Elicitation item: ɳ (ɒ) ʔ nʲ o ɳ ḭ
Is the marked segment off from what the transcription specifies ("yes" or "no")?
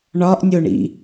no